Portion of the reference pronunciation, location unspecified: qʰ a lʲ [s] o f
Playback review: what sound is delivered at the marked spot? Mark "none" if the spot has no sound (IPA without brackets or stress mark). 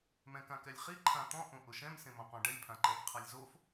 z